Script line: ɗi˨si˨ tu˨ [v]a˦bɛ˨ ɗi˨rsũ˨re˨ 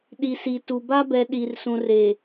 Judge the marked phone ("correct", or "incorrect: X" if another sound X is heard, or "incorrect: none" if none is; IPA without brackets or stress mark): incorrect: b